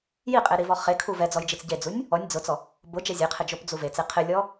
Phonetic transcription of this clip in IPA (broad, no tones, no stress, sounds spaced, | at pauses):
j i qʼ e ɾ i v ɔ χ e kʰ u v ɛ d͡z ɔ j d͡ʒ i t͡s ɟ e d͡z u nʲ | ɔ nʲ d͡z ʊ t͡s ɔ | b ʊ d͡ʒ ɛ zʲ e qʰ ɪ d͡ʒ o p d͡z u v e t͡s e qʰ ɪ lʲ ɔ